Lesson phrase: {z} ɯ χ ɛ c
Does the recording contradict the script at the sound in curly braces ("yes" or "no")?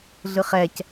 yes